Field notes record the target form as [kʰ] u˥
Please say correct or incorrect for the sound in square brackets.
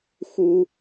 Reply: incorrect